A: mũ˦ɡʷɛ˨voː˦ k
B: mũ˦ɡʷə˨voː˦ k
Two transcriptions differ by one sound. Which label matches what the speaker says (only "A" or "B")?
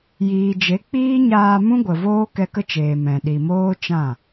B